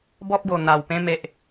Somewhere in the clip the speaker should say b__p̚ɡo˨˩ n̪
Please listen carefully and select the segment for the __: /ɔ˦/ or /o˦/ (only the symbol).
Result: ɔ˦